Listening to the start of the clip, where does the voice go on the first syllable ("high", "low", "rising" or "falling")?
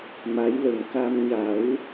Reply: rising